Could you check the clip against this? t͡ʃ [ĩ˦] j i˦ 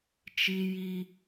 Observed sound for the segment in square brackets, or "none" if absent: i˦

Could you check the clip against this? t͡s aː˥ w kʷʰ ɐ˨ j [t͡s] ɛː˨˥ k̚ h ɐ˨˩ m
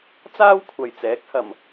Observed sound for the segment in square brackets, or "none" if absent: t͡s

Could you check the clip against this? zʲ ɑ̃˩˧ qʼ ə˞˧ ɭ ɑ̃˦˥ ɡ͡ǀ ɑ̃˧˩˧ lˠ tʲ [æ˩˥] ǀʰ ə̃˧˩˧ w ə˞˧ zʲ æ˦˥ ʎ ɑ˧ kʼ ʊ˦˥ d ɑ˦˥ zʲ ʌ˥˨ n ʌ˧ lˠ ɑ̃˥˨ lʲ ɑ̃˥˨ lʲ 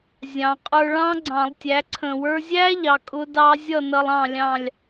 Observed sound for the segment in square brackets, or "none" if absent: æ˩˥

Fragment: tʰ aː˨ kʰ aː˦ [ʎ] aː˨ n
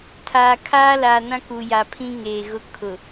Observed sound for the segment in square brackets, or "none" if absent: l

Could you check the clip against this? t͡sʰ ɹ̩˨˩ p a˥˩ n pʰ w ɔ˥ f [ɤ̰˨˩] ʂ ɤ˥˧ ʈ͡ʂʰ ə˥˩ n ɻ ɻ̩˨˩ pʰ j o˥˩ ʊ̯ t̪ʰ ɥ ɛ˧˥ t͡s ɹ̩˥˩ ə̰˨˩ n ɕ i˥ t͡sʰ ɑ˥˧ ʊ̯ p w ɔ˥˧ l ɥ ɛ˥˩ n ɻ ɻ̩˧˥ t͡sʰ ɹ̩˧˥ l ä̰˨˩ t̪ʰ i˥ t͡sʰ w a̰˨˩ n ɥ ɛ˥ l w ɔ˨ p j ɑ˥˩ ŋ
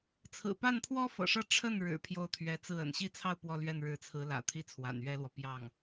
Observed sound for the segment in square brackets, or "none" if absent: ɤ̰˨˩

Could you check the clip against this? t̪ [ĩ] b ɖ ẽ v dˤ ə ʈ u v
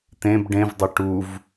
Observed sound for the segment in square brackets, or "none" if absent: ẽ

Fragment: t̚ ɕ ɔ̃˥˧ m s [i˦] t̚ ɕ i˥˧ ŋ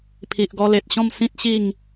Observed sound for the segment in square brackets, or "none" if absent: ĩ˦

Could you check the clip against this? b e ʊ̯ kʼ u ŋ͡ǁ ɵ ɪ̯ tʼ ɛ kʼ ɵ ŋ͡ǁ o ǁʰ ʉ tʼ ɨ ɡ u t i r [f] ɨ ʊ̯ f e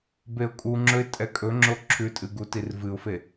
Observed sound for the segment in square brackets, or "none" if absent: v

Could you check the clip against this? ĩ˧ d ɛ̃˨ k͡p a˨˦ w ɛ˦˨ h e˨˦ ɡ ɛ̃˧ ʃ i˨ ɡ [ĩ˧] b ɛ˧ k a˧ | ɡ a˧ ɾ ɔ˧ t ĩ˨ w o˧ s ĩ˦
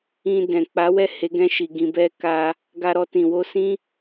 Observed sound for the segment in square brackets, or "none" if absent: ĩ˨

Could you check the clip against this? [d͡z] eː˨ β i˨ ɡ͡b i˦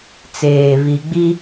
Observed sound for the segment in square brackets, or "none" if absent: t͡s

